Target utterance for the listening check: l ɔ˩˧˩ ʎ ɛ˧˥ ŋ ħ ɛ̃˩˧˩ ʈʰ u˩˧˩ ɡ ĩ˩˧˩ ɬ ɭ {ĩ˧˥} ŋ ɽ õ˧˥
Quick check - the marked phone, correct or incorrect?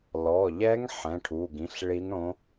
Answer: incorrect